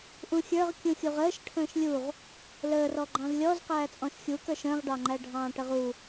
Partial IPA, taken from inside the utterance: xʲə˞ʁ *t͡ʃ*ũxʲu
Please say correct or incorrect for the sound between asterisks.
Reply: incorrect